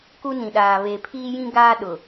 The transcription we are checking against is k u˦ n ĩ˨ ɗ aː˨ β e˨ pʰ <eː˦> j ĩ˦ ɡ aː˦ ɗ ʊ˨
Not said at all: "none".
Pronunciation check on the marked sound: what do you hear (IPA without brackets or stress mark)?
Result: iː˦